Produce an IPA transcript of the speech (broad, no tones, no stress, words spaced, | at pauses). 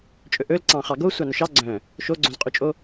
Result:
t͡ʃʼɵʔɵlǀɑ̃ χɑɡo sʷɑnɵʃɑ ɡ͡ǀœ̃ | ʃoɡ͡ǀõzqʼyt͡ʃʼo